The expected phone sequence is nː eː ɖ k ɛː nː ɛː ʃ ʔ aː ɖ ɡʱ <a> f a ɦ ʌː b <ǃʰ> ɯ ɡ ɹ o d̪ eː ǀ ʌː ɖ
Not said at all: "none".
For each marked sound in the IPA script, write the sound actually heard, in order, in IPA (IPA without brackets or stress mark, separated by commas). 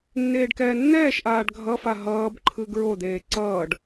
ʌ, ǃʰ